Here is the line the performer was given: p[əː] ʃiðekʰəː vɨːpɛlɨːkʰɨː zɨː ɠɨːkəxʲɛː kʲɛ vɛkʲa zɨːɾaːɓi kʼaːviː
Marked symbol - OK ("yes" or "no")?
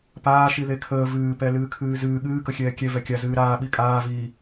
no